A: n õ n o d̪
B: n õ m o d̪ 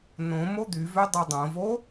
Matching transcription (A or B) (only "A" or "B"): B